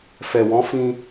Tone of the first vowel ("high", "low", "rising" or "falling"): low